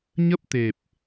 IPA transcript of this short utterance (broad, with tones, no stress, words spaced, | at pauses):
ɲə˦˥p̚t̪e˨˩p̚